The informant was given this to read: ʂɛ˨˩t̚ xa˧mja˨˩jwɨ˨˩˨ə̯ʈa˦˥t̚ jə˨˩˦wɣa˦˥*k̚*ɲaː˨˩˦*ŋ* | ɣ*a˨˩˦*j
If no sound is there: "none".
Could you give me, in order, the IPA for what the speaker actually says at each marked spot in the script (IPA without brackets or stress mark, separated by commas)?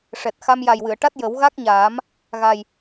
k̚, m, a˨˩